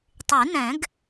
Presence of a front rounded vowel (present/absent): present